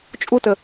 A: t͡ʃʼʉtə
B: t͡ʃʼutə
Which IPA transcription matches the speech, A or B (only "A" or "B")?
B